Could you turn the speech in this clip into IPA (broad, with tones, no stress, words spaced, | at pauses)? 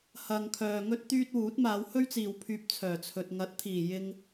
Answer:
hɐ˨ŋkʰœː˨ŋɵ˥t̚ t̪yː˥t̚wuː˨˥t̚ maː˨˧whɵ˥ɥt͡siː˨w pʰyː˧p̚t͡sʰœː˨˩t͡sʰɵ˨t̚ ŋɐ˨˥t̚t̪ʰiː˨˩ jɪ˥ŋ